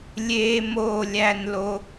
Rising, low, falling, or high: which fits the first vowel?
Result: high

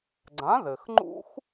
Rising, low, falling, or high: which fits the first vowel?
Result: rising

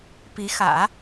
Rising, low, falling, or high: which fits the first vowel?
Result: rising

